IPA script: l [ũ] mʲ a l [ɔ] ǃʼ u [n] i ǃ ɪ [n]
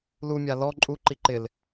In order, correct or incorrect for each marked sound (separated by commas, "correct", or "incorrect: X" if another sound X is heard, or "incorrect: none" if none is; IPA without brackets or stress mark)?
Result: incorrect: u, correct, incorrect: ǃ, incorrect: l